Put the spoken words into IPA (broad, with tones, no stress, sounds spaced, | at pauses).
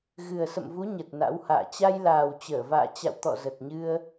ɣ ɨ˨˩ ə̯ s ə̰˧˨ m v u˨˦ ɲ ə˨˩ t̚ n a̰˧˥ w h a̰ː˧˨ t͡ɕ a˧ j l aː˨˩ w t͡ɕ əː˧˩ v a̰ː˧˨ t͡ɕ a̰˧˨ w t̪ ɔ̰˧˨ z ə˨˩ t̚ ɲ ɨ˧ ə̯